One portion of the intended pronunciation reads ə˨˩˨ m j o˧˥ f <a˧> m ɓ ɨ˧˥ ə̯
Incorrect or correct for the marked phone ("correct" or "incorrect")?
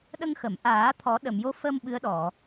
incorrect